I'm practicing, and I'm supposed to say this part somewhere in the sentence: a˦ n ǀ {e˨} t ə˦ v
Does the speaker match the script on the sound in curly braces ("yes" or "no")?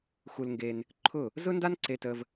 no